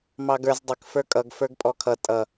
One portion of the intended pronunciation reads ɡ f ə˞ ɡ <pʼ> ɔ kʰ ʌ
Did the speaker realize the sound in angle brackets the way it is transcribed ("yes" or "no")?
yes